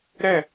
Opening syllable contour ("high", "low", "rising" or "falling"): falling